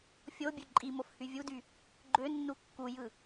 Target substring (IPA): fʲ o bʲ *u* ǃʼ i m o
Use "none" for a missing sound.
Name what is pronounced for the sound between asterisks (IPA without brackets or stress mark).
ø